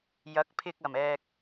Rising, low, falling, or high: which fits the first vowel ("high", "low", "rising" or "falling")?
rising